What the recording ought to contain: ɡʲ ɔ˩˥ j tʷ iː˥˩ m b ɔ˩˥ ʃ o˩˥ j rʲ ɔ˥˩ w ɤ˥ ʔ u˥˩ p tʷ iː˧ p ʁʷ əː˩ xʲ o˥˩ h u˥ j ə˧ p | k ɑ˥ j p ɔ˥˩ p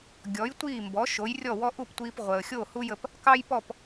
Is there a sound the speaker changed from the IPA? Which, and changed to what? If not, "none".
ɤ˥ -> ɔ˥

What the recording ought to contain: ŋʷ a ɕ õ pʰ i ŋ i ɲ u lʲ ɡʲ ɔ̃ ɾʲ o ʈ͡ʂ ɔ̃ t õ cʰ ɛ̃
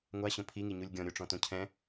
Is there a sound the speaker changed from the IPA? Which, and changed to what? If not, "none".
none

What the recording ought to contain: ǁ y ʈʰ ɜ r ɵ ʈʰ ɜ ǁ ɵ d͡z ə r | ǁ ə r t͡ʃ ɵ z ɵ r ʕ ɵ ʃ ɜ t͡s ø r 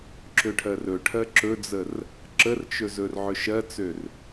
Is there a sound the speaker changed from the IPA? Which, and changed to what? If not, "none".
y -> ø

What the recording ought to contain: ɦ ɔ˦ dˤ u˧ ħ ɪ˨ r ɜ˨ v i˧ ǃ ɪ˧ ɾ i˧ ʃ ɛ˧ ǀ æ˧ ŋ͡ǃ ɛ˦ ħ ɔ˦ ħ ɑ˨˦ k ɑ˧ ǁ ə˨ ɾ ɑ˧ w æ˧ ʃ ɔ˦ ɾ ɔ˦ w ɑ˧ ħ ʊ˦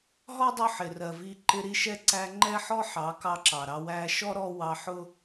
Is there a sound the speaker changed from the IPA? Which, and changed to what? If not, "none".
ə˨ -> ɑ˨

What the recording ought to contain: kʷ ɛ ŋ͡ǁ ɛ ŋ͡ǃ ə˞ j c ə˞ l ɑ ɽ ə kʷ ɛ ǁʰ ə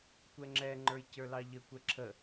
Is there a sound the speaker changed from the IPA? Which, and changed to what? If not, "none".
ɽ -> ʎ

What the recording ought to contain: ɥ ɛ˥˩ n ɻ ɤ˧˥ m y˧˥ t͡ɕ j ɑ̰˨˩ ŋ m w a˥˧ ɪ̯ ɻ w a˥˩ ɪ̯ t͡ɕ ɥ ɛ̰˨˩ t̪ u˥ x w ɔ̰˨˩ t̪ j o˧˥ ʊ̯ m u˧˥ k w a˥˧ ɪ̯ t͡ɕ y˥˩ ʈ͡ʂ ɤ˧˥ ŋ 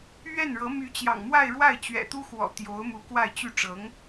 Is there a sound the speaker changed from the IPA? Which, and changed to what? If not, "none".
none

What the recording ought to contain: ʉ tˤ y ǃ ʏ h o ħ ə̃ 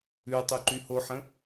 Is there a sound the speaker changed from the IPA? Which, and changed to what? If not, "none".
ʏ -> y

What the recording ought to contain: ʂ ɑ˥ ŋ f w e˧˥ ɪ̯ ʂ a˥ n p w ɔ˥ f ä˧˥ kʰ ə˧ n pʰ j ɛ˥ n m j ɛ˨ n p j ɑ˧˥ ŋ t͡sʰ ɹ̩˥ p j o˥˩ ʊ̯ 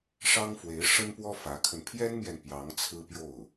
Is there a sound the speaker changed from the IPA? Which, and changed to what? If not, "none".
a˥ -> ə˥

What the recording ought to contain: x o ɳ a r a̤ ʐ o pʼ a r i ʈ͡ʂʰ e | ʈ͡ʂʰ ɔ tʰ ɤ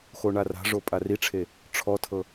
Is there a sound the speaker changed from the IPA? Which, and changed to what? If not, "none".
none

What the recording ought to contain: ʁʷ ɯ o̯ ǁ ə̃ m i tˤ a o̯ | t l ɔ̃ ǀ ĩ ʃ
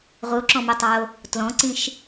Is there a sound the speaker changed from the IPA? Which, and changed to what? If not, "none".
ə̃ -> ɔ̃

